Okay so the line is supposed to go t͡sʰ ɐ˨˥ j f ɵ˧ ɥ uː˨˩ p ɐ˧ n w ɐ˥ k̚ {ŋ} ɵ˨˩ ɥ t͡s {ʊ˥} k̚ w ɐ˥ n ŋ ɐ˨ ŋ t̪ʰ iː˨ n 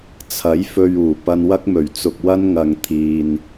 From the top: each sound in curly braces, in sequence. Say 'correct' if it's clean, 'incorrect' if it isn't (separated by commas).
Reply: incorrect, incorrect